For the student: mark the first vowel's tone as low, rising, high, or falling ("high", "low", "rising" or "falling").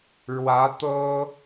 rising